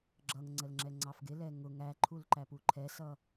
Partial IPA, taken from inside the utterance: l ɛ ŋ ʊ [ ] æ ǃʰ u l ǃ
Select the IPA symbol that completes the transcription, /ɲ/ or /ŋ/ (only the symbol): ŋ